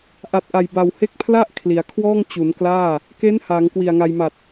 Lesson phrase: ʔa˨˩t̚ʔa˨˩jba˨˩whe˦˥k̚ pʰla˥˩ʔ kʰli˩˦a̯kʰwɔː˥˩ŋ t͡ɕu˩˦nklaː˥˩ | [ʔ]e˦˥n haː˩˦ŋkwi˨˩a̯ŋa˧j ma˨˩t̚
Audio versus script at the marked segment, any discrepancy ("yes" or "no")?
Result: yes